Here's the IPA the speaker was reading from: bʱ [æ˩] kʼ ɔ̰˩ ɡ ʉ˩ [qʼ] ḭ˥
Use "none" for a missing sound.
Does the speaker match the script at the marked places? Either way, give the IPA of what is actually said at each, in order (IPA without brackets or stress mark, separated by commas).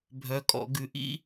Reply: œ˩, ʔ